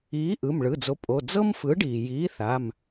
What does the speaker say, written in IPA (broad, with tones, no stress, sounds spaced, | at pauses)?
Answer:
iː˨˥ ʔ ɯ˩˧˩ m ɭ ɯ˩˧˩ d͡z o˨˥ pʼ o˩˧˩ d͡z ɤ˥ m f ɯ˨˥ ɖ iː˩ j iː˨˥ θ a˩˧˩ m